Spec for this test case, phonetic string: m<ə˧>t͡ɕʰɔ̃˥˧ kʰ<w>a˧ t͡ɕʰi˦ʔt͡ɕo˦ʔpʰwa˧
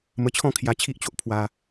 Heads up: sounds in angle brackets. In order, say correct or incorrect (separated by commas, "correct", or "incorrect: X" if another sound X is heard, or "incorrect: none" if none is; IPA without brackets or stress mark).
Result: correct, incorrect: j